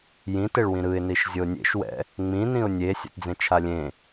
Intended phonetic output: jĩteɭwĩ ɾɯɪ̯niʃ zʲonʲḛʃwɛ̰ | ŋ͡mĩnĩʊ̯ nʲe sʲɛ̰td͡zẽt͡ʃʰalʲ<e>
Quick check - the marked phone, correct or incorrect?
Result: incorrect